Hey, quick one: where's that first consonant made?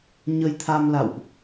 palate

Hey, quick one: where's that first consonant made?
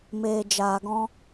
lips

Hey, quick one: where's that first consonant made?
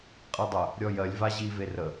uvula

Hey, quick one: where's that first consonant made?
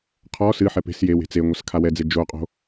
uvula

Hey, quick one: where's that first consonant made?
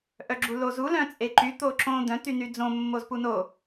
throat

